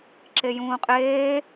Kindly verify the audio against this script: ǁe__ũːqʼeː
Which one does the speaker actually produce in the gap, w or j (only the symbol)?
j